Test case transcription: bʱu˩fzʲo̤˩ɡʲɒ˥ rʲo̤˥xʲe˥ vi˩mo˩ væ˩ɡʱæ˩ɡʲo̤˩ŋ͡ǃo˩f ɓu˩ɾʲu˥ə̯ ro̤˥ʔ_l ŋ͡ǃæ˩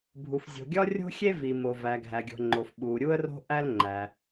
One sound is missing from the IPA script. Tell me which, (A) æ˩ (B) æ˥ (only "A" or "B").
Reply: B